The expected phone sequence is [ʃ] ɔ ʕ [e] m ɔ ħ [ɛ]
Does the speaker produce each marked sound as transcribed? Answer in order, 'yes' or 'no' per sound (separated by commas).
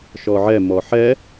yes, no, yes